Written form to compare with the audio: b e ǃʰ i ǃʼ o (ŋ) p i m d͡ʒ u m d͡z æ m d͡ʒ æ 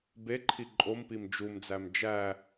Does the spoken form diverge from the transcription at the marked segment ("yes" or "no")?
yes